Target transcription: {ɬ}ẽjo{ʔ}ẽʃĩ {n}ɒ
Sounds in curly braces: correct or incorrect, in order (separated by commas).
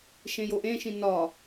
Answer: incorrect, correct, correct